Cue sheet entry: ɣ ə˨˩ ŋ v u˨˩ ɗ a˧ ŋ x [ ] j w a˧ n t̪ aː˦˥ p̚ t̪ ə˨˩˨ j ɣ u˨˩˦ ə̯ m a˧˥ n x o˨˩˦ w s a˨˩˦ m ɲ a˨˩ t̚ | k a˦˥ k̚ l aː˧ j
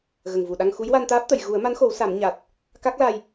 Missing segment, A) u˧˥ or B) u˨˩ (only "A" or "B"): A